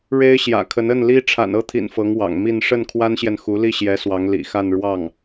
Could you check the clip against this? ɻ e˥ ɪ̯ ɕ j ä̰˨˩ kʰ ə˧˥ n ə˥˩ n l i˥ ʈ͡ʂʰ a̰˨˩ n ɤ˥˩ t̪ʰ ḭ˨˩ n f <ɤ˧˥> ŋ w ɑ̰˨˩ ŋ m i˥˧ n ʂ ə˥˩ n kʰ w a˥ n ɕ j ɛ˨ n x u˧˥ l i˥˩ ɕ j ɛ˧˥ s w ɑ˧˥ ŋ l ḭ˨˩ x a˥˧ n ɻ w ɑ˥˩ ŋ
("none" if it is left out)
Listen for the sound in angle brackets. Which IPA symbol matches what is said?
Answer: ɤ˧˥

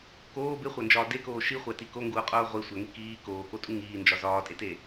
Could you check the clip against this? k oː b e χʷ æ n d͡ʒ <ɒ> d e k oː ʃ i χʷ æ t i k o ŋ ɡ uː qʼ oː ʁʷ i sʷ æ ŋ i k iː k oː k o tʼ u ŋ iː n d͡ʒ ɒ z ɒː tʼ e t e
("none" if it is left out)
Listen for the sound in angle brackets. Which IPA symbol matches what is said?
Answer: ɒː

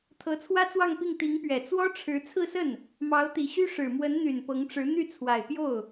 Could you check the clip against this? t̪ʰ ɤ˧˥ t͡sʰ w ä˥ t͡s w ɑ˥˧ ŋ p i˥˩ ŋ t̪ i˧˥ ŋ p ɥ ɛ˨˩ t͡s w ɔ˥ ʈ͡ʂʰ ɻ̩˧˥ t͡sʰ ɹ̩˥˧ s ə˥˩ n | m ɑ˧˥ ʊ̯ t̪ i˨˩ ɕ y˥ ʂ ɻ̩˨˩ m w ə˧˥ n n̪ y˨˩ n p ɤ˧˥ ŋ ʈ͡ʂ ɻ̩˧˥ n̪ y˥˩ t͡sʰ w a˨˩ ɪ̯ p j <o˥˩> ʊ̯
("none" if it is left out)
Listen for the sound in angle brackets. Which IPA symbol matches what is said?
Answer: o˥˩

